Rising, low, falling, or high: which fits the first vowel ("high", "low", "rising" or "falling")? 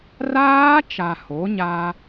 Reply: high